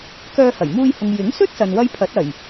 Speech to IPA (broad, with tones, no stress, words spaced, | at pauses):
kœː˧hɐ˨˩jmuː˧jhʊ˨ŋ jɪ˨˥ŋsɵ˥t̚ sɐ˨nwɐ˥jpʰɐ˨˥t̚ ɐ˨˩j